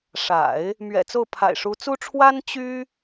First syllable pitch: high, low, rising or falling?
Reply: low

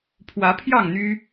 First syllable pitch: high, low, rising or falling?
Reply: rising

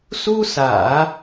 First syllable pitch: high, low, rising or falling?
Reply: high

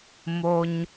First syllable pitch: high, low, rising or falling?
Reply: high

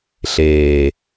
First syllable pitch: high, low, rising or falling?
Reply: low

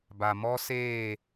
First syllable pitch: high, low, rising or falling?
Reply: low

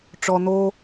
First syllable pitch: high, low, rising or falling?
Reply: low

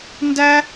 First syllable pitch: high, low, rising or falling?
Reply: high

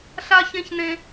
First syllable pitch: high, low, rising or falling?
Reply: high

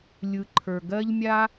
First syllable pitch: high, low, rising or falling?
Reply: low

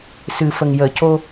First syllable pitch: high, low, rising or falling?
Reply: low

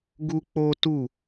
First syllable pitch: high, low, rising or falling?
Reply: high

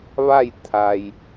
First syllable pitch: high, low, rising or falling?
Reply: falling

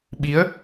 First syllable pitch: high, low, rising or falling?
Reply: rising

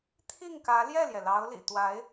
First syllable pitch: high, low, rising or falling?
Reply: falling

